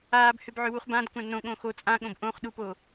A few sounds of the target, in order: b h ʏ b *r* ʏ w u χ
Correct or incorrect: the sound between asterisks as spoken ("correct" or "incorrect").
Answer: incorrect